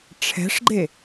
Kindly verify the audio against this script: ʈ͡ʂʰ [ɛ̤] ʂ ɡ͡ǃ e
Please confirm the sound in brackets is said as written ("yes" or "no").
yes